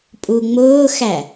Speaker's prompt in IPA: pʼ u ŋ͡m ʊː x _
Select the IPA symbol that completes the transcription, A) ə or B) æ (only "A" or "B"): B